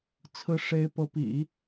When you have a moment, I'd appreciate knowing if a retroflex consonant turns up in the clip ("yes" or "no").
yes